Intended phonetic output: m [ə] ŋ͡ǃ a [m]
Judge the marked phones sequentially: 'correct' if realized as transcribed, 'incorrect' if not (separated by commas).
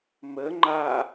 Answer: correct, incorrect